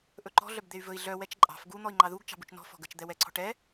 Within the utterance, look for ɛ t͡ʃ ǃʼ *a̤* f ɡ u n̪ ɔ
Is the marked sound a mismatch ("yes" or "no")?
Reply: yes